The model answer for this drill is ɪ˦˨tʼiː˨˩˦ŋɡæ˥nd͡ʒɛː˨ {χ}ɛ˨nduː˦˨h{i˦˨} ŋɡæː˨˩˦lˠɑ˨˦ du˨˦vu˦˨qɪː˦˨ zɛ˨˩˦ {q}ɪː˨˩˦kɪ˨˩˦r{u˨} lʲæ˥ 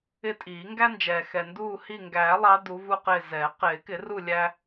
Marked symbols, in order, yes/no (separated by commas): no, yes, yes, no